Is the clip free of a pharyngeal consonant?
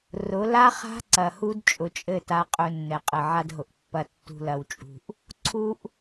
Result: no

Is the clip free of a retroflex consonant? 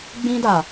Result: yes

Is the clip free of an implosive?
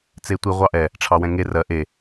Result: yes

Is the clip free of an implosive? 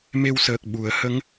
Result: no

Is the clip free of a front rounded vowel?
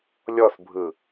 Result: yes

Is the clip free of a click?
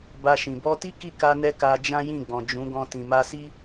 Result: yes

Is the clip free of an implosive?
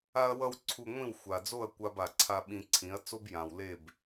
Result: no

